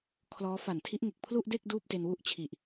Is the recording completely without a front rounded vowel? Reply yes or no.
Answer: yes